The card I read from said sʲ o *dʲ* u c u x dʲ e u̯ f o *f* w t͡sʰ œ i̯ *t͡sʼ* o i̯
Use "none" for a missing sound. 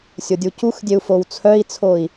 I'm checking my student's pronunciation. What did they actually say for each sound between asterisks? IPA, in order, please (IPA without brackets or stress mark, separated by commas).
dʲ, none, t͡sʰ